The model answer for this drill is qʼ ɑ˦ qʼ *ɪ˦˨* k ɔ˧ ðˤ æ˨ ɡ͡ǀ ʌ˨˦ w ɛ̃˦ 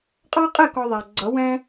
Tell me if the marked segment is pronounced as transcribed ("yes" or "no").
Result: yes